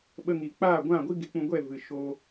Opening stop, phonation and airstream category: implosive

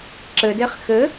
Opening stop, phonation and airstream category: click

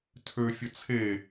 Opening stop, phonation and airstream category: aspirated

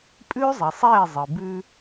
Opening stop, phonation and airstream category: ejective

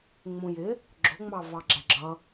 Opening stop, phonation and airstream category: click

